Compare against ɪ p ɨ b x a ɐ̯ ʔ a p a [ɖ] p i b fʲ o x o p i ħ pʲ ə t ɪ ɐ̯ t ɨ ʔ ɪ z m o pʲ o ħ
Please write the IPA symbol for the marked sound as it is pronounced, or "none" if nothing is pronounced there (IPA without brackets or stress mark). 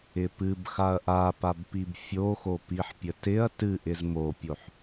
b